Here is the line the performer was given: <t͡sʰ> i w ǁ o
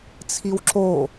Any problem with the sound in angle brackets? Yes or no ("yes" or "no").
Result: no